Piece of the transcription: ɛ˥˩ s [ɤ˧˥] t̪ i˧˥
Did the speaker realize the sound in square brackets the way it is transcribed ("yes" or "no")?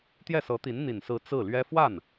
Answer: yes